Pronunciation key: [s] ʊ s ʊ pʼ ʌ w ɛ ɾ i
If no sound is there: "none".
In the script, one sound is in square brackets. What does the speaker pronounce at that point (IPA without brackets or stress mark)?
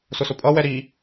s